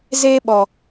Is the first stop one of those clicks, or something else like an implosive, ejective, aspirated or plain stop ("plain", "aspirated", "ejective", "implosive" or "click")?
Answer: implosive